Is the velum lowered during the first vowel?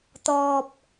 no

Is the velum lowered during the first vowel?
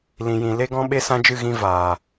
yes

